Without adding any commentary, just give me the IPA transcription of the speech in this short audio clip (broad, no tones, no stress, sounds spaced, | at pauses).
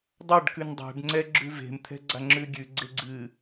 dˤ a ɖ k ʉ n dˤ ɛ̤ ɖ ŋ͡ǀ ɛ ɡ͡ǁ ʉ v e̤ m t̪ʰ ɛ̤ ɡ͡ǀ a ŋ͡ǁ ʉ ɡʲ ʉ ɡ͡ǀ e ɡ͡ǀ ɨ